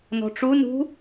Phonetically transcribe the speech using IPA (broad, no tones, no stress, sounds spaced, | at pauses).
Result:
n ɔ̤ ʈ͡ʂ u n ṳ